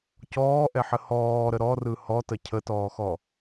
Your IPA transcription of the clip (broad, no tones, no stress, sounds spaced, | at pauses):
c ɔː ʔ ɛ ħ ə h ɔː ɾ ə ɾ ɔ r ɯ h ɔ t ə cʰ ə t ɔː x ɔ